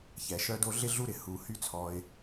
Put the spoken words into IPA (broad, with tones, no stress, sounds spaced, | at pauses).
ç ɛ˩ ʃ œ˧ d o˧ ɮ ɪ˧ ɮ u˧ ɾ ɪ˩ h u˩ h y˧ t͡sʰ ɔ˩ ɪ̯